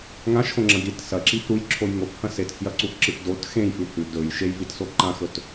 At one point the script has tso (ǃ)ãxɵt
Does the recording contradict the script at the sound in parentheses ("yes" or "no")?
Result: no